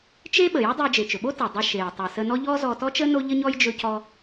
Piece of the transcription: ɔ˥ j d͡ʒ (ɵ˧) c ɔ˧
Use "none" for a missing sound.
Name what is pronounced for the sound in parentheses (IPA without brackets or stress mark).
ɵ˧